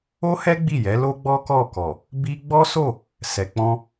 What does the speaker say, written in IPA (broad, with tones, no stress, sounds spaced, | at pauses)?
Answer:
o˦ h ɛ˦ ɡ͡b i˦˨ j ɛ˨˦ l o˦ ɡ͡b ɔ˦ k ɔ˦˨ k ɔ˨ | b i˧ ɡ͡b ɔ˦ s o˦˨ | s ɛ˨ k͡p ɔ̃˧